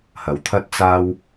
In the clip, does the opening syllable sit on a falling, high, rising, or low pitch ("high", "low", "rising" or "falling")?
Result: rising